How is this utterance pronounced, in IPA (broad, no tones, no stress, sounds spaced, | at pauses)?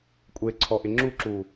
kʷʼ e ǀʰ ɔ ʔ ɪ ŋ͡ǁ u ǁ u